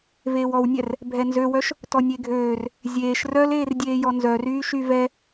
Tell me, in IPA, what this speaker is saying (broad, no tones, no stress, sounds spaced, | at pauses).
v eː w ɔ w nʲ ɛ r | bʱ ɛ n z ø w œ ʃ | t ɔ nʲ e ɡʱ øː r | zʲ eː ʃ r œ l eː r dʲ eː j ɔ n z œ r yː ʃ y v ɛ